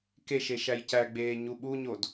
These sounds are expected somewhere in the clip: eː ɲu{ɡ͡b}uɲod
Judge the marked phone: incorrect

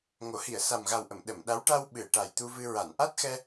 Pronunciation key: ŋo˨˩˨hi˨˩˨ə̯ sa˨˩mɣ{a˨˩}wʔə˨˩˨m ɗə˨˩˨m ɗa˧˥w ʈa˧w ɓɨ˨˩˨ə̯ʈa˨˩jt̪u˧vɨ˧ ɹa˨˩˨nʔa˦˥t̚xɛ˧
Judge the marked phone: correct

